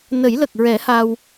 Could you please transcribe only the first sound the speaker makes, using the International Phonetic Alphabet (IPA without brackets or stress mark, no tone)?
n